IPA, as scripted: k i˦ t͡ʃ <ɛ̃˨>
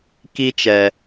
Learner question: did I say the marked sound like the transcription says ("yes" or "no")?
no